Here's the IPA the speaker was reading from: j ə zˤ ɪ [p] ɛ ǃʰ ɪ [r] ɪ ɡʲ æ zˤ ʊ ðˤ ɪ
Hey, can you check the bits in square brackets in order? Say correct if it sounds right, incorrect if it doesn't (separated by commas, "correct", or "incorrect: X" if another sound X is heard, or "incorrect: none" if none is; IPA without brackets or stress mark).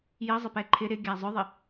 correct, incorrect: ɾ